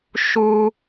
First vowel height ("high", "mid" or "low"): high